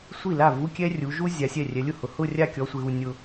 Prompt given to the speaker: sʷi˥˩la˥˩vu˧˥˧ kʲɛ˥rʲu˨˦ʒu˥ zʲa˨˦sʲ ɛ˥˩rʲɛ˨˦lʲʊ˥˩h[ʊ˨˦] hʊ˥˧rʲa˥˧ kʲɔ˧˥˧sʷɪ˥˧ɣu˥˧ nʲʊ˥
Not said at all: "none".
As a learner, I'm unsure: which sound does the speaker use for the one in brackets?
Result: ʊ˨˦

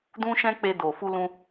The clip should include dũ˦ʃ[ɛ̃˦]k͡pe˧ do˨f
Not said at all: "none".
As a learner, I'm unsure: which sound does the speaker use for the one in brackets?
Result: ɛ̃˦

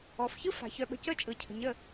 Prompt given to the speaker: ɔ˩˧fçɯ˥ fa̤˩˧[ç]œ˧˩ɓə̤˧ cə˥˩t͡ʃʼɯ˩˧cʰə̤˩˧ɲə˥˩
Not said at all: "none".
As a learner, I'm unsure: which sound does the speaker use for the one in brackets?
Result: ç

